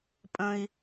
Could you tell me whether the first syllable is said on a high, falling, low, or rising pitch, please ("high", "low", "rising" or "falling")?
high